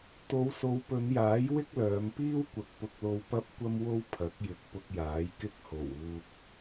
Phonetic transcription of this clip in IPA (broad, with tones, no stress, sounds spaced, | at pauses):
t̪ o˨˧ w s o˨˧ w p ɵ˨˧ n j aː˨˥ j w ɪ˥ k̚ l œː˨˧ m p iː˥ w kʷ ɐ˨ k̚ p ʊ˧ k̚ l o˧ w p ɐ˥ p̚ kʷ ɐ˥ m w o˥ w pʰ ɐ˨˥ k̚ j ɪ˨˥ k̚ p ʊ˧ k̚ j aː˨˥ j k ɪ˥ k̚ h o˨˩ w uː˧ k̚